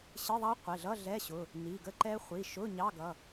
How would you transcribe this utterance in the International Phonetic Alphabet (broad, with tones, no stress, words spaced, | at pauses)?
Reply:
ɕɪ˧˥˧ðˤɑ˦˥ qʷɪ˩˧˩ɮʌ˧˥˧ ɮɛ˧˥˧ɕʊ˩˧˩ | ni˩˧˩ɡə˦˥ǃɛ˦˥ χʷi˩˧˩ʃʊ˧˥˧ ɲɑ˧˥˧ɡʌ˩˧˩